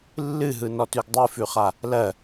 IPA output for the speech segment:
lːɨɦɯnɔtʉɡ dˤɨfʉχa | lɜ

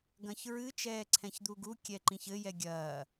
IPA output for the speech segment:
ɡɐ̃çɹɨ t͡ʃɛːǀʰɛ̃çd̪uɡu kʲɛǃĩçɘ jɛɡʲɐː

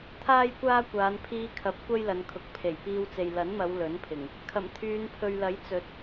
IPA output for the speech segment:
t̪ʰaː˥jkʷaː˥kʷaː˨˧n pʰiː˧ kʰɐ˨˥p̚ kʷɐ˥jlɐ˨˧nkʰʊ˨˥k̚ pʰe˨˩j piː˧wt͡se˨j lɐ˨˥nmɐ˨˧w lɵ˨˥npʰɪ˨˩ŋ | kʰɐ˨˩mt̪ʰyː˨˧npʰɵ˨ɥlɐ˨˥j t͡sɵ˨˥t̚

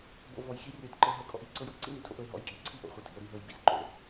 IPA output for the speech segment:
bo̰˧vɔ˨jxi˦ rʲo˧dǃɤ˧ ɦɤ˧kʼɔ̰˧ʔ i˦˨ǀɤ˦j ɔ˦ǀḭ˦ mi˨tʰo̰˦ʔɤ˧e̯ ɦɔ̰˨˦jkʼḭ˧ǀʰi˦ʔo̰˨ χʷɤ˨tʰḭ˨o̯ ɾi˧ ɦɤ˨jbḭ˦sǃo̰˨

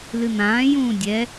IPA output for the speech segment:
lɨn̪ãːjũː dʲɛ

